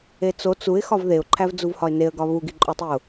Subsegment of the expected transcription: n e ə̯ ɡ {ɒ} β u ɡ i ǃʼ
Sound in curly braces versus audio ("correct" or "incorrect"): correct